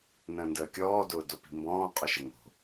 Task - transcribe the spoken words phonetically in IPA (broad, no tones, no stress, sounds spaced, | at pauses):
n ə̃ː n d əː kʲ ɔː d ʊː d o p i̤ m b ɔ̃ː qʼ ʊ ʃ ə ŋ o̤